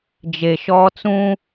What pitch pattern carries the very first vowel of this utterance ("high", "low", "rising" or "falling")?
low